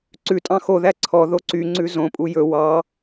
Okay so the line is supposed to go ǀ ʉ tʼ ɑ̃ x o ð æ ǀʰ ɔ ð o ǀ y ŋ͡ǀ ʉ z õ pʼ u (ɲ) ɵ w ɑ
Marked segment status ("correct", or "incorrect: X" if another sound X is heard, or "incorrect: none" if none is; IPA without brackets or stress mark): incorrect: j